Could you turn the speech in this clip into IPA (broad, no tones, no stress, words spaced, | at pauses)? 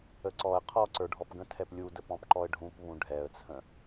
əǀɔə̯ qʰɔǀə˞ ɖʱɔpɡə̃tʰɛp lʲudəp ɔ̃pǃɔə̯ɖʱũp βũɖʱɛə̯t͡sʰə̃